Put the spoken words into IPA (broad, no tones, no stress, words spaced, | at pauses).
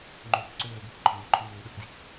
ŋ͡ǃøːkǀøːbɘk ǃɔŋ͡mɘǃo ŋ͡møːɗəkdjik